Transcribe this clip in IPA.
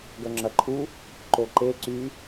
ɡ œ ŋ͡ǁ ɐ ǃʰ u | ǃ o ǃ e ǀ y

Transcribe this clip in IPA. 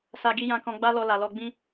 s a˧ ɡ i˧ j ã˧ k ɔ̃˧ ɡ͡b a˦ l ɔ˧ l a˨ l ɔ˧ ɡ͡b ĩ˦

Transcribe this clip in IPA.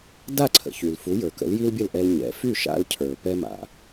d a˥˩ ǀʰ ə̰˩ ç y˩ l f u˩˥ j ə˞˩ k ə̰˩˥ l j i˥ l bʲ ə˥˩ l ʔ ɛ˧ l ɲ ɛ̰˩˥ f y˥˩ ʃ a̰˧ l cʰ ə˞˩ p ɛ˥ m a̰˩

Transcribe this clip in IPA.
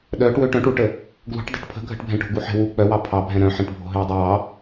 ɗ œː ʈ w øː ʈ œ̃ ʈ u ʈ ə | ɡ l ṳ ʈ dˤ ṳ ʈ pʰ ə̤ ɡʱ ə̤ ʈ bʱ ɛ̃ ʈ o̤ ɡ u ħ ɛ̤ w u k͡p œ w ɑ pʰ ɑ bʱ ɛ̃ ɾ œ̃ ħ ɛ̃ ʈ bʱ o̤ ɦ øː dˤ ø w ɑ

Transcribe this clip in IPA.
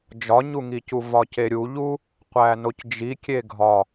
d͡ʒ ɒ ɲ u ŋ i c u v ɒ c e ɾʲ u ʎ u | qʷ æ n o c d͡ʒ i kʲ e ɡʱ ɒ

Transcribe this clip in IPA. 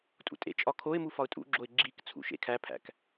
tʼ ṵ tʼ ḛ t͡ʃʼ ɒ kʰ o ɪ̯ m u f ɒ ʊ̯ tʼ ṵ ɡ͡ǁ o ɪ̯ ɡ͡ǁ i k t͡sʰ ṵ ʃ ḛ kʰ æ pʰ æ̰ k

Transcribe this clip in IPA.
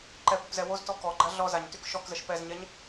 ǃ ɛ p o p z ɛ w o z t ɔ k ɔ ɡ͡ǃ a ɮ ɔ z a ɲ t y k ʃ ɔ k z ə ʃ p ɛ z ɲ ɛ ɲ

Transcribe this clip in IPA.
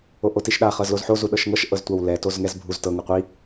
o ʔ o t i ʃ ɗ a χ ɤ z l o z ħ o z u ɗ ɤ ʃ ŋ ɤ ʃ ʔ ɤ z tʷ a w l ɛ t o z ŋ ɛ z bʱ u z t ɤ ŋ ɯ qʷ i

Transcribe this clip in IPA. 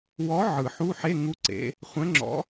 w ɔ˨˥ ʕ ɯ˨˩ ħ u˧˥˧ ħ e˧˥˧ ŋ u˨˥ ǀ ḛ˩˧ | χʷ ɛ̃˨˥ ŋ͡ǁ ɔ̰˨˥

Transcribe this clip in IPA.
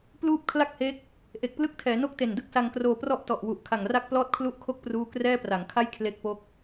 p l uː˥˩ p̚ kʰ l a˥˩ k̚ h e˦˥ k̚ | ʔ e˨˩ k̚ p l ɯ˥˩ k̚ tʰ ɛː˩˦ n o˥˩ k̚ t e˨˩ n d ɯ˥˩ k̚ s a˧ ŋ k r oː˧ p r ɔ˥˩ ʔ t ɔ˨˩ ʔ w u˨˩ ʔ kʰ a˨˩ ŋ r a˥˩ k̚ p l ɔː˥˩ t̚ kʰ l u˥˩ ʔ kʰ o˥˩ k̚ p r uː˥˩ k r ɛː˥˩ p r a˩˦ ŋ kʰ a˥˩ j kʰ l e˦˥ k̚ p o˦˥ k̚

